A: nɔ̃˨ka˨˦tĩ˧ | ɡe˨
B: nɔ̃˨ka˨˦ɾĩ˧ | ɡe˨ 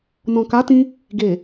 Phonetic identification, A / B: A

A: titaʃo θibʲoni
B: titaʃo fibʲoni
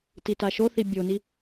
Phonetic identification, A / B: A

